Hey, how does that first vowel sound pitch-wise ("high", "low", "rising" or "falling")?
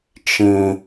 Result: high